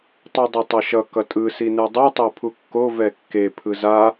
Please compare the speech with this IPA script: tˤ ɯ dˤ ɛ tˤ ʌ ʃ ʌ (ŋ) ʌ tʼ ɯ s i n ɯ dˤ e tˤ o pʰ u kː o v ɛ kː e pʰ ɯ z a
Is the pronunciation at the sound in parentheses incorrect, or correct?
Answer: incorrect